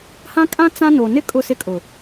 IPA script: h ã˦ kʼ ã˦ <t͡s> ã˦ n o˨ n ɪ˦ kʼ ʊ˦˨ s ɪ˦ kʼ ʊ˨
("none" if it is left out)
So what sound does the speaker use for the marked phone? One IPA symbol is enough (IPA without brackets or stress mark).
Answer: t͡s